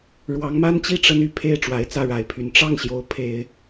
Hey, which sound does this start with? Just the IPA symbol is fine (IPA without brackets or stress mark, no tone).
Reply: ɻ